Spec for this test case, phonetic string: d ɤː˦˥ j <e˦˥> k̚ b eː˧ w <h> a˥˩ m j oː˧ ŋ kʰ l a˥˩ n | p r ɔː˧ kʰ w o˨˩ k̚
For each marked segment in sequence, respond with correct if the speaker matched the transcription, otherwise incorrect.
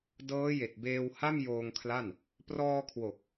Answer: incorrect, correct

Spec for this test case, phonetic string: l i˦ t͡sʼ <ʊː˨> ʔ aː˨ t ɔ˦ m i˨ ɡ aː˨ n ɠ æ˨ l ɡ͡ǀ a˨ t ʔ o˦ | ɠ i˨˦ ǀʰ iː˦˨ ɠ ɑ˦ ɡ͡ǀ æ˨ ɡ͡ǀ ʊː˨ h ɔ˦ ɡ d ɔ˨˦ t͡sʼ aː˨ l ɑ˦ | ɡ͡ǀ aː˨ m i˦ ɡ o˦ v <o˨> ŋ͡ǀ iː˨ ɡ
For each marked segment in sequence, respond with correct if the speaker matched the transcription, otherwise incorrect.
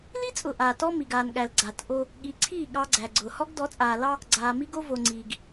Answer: incorrect, correct

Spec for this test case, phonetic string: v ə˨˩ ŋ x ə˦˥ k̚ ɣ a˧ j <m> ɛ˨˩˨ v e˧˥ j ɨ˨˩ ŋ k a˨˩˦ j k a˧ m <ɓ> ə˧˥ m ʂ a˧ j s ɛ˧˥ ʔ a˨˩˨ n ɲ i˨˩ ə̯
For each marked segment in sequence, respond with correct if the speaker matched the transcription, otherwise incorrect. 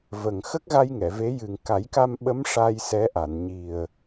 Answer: incorrect, correct

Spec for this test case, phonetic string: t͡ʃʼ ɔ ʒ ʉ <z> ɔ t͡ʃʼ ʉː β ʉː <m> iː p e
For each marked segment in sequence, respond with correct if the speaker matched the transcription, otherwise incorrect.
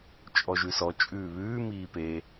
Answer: incorrect, correct

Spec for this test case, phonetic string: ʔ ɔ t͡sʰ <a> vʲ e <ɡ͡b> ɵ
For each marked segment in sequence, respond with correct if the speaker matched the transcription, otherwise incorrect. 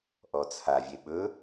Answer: correct, incorrect

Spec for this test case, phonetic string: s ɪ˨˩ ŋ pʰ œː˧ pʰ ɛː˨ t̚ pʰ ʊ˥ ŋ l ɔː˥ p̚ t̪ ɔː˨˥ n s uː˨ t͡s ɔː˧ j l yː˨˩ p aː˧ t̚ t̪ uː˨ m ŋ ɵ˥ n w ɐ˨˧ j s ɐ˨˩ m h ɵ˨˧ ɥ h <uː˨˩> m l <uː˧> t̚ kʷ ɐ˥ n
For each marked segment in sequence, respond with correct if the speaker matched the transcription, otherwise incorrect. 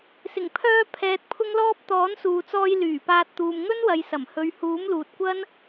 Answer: incorrect, incorrect

